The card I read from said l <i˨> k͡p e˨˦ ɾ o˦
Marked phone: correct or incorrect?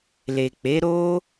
incorrect